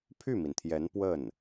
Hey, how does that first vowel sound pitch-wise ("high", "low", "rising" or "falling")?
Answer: falling